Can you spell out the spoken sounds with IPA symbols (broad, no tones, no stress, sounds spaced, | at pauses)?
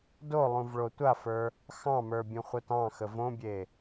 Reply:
d o lˠ ũ v ɭ o tʷ a f ə˞ | x ɑ̃ m ə˞ bʲ ũ χʷ œ t ɑ̃ x ə v õ bʲ e